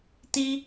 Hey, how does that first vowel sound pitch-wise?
high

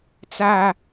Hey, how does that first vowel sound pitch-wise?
low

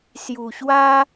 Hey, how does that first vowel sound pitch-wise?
low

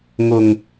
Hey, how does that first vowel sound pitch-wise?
low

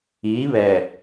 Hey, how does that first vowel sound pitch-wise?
rising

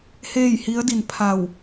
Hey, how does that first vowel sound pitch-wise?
falling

